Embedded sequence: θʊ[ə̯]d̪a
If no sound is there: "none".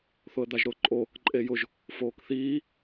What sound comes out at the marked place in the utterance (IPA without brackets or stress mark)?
ə̯